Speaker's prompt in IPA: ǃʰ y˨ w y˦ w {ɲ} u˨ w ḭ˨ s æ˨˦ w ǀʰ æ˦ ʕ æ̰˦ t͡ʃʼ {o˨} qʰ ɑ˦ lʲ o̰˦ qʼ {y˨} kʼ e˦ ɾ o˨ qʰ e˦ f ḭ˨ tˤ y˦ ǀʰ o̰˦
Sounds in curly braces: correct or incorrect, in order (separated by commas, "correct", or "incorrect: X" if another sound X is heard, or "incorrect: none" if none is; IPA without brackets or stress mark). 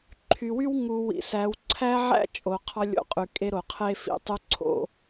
incorrect: ŋ, correct, correct